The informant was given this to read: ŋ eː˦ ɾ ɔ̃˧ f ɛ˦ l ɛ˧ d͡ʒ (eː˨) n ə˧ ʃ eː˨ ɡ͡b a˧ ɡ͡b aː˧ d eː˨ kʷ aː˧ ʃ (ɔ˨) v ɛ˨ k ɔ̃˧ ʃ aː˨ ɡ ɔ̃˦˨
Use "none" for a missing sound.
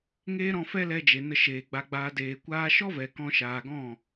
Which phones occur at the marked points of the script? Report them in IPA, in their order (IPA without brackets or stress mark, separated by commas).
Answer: e˨, ɔ˦